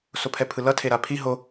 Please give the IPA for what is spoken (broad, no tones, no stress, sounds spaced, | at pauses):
s o pʰ ɛ pʰ ɯ l ʌ tʰ e ɾ a pʰ i ɦ o